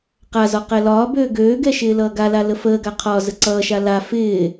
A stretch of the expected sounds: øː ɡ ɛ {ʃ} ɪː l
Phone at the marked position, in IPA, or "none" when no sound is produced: ʃ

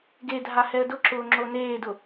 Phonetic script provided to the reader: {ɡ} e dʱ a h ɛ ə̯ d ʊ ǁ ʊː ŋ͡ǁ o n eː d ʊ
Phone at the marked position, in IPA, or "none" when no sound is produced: ɡ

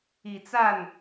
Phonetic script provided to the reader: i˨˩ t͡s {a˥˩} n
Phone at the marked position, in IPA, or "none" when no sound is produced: a˥˩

